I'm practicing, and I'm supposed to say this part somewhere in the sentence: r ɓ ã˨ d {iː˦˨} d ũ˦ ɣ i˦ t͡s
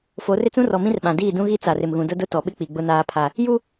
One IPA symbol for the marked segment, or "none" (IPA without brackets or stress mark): iː˦˨